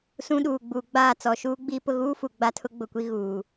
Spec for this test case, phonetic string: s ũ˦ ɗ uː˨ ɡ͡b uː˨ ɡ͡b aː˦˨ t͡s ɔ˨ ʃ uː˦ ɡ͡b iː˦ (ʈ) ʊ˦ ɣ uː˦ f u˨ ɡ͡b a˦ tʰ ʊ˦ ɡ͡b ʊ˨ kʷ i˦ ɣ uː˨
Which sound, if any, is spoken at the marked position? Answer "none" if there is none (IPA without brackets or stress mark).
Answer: p